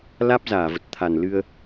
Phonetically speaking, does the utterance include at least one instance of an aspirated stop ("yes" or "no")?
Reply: yes